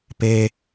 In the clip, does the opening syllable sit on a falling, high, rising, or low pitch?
low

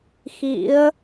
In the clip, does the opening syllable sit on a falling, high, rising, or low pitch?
rising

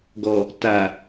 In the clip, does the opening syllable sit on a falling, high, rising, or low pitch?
low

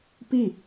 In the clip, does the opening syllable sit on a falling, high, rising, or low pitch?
falling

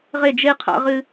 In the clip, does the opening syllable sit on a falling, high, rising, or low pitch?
falling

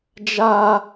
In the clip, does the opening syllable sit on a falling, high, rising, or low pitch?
high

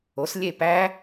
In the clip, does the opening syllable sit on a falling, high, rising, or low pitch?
rising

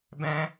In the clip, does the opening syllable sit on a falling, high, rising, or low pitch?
low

